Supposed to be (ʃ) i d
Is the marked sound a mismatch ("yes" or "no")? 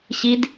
yes